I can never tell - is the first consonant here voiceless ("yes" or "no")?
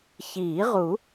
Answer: yes